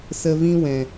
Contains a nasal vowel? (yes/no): yes